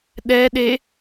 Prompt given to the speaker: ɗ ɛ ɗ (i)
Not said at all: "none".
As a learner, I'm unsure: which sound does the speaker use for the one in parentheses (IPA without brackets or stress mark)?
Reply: e